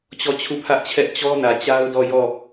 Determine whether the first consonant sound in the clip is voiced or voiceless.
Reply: voiceless